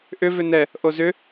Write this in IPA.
ʔʏ vʏnɛ | ʔozʏ

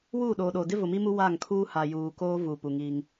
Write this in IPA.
wuː˦˨ɗoː˨ɗoː˨ dɪ˦vʊ˨mi˦mu˦ wa˦˨ŋkʰuː˦ ha˨juː˨ koː˦vu˨ pu˨ŋi˦ŋ

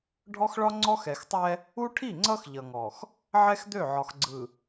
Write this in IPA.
ɖʱɔ˦xɭɒ˦ŋ͡ǀɔ˦x ɛ˨xtˤɛ˦ | u˦ʈʰi˦˨ŋ͡ǀʌ˦x ʎʌ˨ŋɔ˨x | ʕɛ˦xd̪ø˦˨ʕɒ˨xɡ͡ǀɯ˨

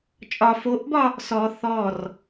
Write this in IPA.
t͡ʃʼɒ foʔbɒ | sɔ θɔr

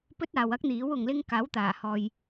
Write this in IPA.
pɵ˥t̚aː˨wɐ˥k̚ n̪iː˨˥wʊ˨ŋlɪ˥ŋ kaː˨˥wt̪aː˨˩hɔː˨j

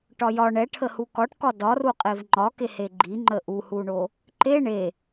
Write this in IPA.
ʈɒjɒ ɳɛʈʰə hukɒʈkɒ dɒru qʼevŋ͡ǃɒke heɡ͡ǃiŋ͡ǃə ʔuhuɳo | ǃe ɳe

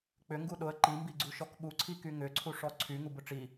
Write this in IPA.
k͡pʏŋɡu ɗʊə̯ ǃimbiɡ͡ǀuʃɔk ɓuǀʰiky ŋʏǀʰuʂɔ ǀʰyŋubʊ ʈ͡ʂi

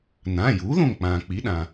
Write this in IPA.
nãː˩˧˩juː˩˥ðõ˧˩ŋk͡pãː˩ k͡pi˩˥ɗã˩

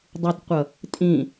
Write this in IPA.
dˤutqʷʌ | tʼĩ

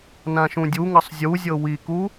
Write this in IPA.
nãʃũdʲuŋɤsˤ zʲuzʲɤ wiku

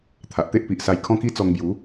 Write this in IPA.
t̪ʰa˨ʔt̪e˦ʔpi˨ʔsa˧j kʰɔ̃˦ki˦t͡sɔ˧ŋbju˨˦

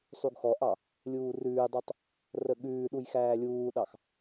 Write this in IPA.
sˤuɡxɔʔɑ | lʲuːrʉːdˤɑtˤ | rəɠʉːɗuj xæːlʲuːɗɑx

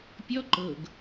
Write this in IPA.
pʲɔ ǃɤɡ

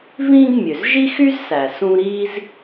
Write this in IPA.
vĩː˥ɡ mʲø˩zʒi˥xy˥z sæ˩ sũ˦ɾiː˥z

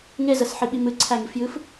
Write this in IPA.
ŋezəsħiɓi mɨǀʰæŋifjɨf

